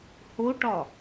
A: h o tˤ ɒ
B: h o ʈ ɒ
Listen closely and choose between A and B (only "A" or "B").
B